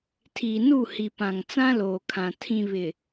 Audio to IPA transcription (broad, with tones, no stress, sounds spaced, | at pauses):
tʰ iː˨ n u˦˨ h i˨ p ã˨ ŋ t͡s ã˦ l oː˨ kʰ ã˨ tʰ ĩ˨ β ɪ˨